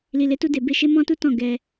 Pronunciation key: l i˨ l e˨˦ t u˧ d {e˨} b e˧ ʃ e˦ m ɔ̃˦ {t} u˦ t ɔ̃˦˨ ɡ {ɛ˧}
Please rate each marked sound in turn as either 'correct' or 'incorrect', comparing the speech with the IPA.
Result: correct, correct, correct

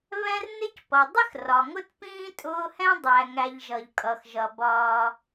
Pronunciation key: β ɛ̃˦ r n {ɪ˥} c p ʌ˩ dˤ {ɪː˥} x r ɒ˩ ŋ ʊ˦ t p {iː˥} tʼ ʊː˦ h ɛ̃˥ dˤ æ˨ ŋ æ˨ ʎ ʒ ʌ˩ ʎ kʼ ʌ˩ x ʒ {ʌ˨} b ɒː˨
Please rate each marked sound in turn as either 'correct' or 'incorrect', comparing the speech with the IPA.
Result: correct, incorrect, incorrect, incorrect

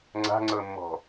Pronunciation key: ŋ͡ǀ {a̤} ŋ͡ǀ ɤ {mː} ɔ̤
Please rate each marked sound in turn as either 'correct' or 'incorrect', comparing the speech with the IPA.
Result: correct, correct

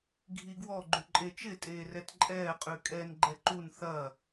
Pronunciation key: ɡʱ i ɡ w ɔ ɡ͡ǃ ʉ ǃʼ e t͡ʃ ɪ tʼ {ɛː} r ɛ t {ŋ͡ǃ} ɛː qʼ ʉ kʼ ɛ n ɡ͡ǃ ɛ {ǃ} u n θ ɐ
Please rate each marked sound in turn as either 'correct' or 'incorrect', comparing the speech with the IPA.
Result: incorrect, incorrect, correct

